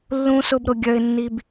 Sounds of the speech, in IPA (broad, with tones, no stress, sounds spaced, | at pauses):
lː ũ˥ s ʊ˥ b ɾ ʊ˧ ɡʲ œ˧ ɪ̯ nː i˧ b